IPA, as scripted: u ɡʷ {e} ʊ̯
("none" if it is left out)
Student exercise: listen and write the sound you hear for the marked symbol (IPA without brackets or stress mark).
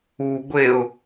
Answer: e